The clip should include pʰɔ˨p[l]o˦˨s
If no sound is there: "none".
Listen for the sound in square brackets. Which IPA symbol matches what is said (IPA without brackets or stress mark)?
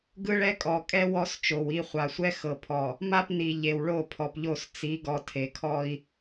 ʎ